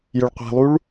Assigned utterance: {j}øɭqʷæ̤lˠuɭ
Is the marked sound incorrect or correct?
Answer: correct